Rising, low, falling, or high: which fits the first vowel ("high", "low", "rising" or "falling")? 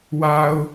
low